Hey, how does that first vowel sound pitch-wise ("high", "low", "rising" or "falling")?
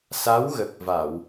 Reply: rising